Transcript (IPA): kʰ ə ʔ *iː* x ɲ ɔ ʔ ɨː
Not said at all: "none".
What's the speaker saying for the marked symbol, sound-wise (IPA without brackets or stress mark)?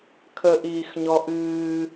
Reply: iː